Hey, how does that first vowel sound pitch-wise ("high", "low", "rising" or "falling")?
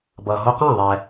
low